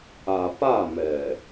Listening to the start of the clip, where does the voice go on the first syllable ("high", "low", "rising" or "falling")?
low